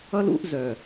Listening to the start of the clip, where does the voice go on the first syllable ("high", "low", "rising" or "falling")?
high